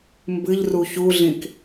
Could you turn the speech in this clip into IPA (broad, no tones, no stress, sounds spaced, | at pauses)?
m b ɨ ʎ r u ç u ɮ ĩ k